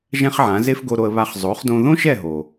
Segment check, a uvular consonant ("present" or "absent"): present